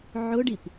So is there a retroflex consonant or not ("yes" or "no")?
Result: yes